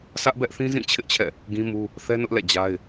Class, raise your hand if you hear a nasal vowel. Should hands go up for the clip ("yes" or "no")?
yes